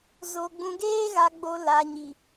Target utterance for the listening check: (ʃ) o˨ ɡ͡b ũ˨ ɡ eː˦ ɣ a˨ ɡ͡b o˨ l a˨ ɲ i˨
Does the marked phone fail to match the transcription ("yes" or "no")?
yes